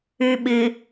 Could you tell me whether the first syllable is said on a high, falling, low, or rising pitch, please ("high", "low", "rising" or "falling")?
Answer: low